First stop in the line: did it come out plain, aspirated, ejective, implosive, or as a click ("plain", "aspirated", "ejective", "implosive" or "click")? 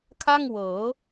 aspirated